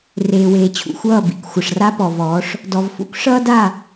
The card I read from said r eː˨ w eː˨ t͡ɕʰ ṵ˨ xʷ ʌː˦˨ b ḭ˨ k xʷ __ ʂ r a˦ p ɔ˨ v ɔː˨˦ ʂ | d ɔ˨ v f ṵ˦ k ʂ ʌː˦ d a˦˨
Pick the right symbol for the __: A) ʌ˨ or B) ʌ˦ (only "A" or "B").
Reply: A